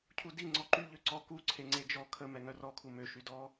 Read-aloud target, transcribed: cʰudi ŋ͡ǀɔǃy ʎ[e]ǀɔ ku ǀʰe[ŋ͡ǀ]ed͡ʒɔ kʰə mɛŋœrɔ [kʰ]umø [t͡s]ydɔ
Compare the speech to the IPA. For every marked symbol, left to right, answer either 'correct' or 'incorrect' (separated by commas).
incorrect, correct, correct, incorrect